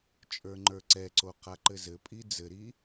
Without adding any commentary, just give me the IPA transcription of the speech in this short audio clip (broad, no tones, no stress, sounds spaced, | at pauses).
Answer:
t͡ʃʼ ə˞ ŋ͡ǃ ə˞ ǀ ɛ ǀ o q a ǃ ɘ z ɘ pʼ i d͡z ɘ ɾ i